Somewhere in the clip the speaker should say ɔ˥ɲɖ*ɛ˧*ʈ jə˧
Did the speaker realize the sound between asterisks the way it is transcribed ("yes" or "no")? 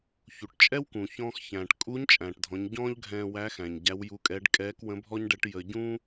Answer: no